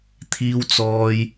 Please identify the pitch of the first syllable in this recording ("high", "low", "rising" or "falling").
low